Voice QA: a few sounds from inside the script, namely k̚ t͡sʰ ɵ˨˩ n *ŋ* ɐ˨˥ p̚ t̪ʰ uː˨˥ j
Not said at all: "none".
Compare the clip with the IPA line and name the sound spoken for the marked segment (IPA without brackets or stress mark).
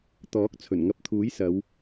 ŋ